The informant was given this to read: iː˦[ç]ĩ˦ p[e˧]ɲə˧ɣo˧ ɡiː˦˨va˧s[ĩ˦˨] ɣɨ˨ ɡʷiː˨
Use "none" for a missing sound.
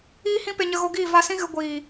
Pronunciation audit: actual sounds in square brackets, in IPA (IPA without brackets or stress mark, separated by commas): h, e˧, ĩ˦